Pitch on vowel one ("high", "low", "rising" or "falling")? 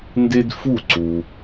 high